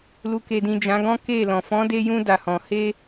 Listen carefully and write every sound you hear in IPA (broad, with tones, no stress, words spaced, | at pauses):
lu˨ke˨dĩ˨ d͡ʒã˨˦ɡɔ̃˦ke˦˨lɔ̃˨ fɔ̃˨˦de˧jũ˧ da˨hɔ̃˨ he˧